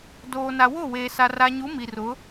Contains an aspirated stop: no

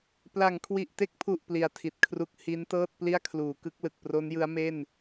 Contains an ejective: no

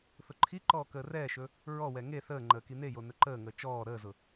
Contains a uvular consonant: no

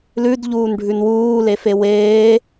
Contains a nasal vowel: no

